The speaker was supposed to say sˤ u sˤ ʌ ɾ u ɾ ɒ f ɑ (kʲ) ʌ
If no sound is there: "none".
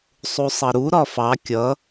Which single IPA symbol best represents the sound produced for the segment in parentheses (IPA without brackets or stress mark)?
kʲ